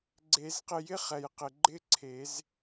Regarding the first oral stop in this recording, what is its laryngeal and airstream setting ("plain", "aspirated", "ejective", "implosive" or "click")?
click